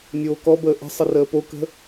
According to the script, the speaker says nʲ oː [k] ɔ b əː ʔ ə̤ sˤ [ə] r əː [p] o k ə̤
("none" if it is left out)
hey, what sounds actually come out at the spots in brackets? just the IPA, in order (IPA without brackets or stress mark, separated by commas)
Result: k, ə, p